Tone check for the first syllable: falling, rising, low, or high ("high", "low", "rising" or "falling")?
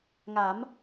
rising